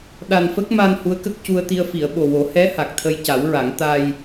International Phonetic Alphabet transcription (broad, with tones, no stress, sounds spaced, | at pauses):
ɗ a˨˩ n f ə˦˥ k̚ m a˧ n h u˧˥ ə̯ k ə˦˥ k̚ c u˧ ə̯ t̪ i˧ ə̯ f i˨˩˨ ə̯ ɓ o˨˩ w o˨˩˦ h ɛ˧˥ h a˨˩ k̚ t̪ʰ ə˧ j c a˨˩˦ w ɹ a˨˩˦ ŋ t̪ a˧ j